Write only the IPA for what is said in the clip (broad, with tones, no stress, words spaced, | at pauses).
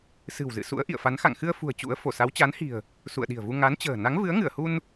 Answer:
sɨ̤˨˩wzɨ̰˧˨sṵ˧˥ə̯ ʔḭ˧˨ə̯fa˨˦n xa̰˧˨ŋxɨ˧ə̯fṳ˨˩ə̯ t͡ɕṵ˧˥ə̯ fo˧˩sa˨˦w t͡ɕa˨˦nhi̤˨˩ə̯ | sṵ˧˨ə̯ɗi̤˨˩ə̯vu˧ ŋa˨˦nt͡ɕə̤ː˨˩ na˨˦ŋvɨ˨˦ə̯ŋɨ˧˩ə̯hu˧n